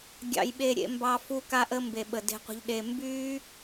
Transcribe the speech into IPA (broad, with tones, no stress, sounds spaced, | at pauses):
ɡʲ ɑ̰˧ j ɓ e˧ ɾʲ ḛ˧ m b ɑ˧ f u˦ k a˦ ʔ ə˦ m b e˨ ɓ ə˨ d e̤˧ qʷ ə̤˧ ʎ ɗ e˧ m b yː˦